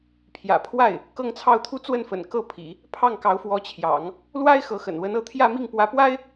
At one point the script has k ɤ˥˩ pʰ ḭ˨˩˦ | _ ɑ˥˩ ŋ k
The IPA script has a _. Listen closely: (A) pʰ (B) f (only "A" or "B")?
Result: A